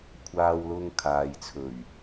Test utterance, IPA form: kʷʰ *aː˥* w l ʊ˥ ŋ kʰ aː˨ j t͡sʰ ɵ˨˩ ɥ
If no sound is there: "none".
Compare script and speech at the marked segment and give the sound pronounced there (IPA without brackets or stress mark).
aː˥